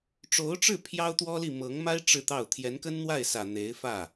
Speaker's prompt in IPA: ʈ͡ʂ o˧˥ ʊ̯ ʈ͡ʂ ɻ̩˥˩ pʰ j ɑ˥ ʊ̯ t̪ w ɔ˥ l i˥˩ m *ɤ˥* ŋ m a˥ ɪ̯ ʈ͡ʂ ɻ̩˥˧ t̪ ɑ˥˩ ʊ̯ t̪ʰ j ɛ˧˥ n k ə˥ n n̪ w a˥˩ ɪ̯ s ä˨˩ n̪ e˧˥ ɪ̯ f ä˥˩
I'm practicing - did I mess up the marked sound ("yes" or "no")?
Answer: yes